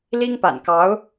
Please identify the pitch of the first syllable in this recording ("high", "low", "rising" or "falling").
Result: high